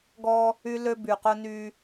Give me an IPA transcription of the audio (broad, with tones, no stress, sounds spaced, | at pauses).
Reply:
ɡ ɔ˦ | y˦ l ø˦ b y˨ q ʊ˦ n y˦